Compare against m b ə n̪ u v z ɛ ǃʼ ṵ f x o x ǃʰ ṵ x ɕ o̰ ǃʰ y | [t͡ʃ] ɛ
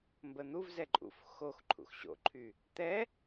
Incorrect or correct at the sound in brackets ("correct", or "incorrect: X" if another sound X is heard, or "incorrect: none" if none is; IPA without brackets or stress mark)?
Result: incorrect: t̪